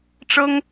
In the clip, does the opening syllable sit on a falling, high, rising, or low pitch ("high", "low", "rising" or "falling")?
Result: high